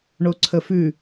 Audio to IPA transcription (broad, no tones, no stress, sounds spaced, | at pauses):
ɳ o ǀʰ ə f ʉ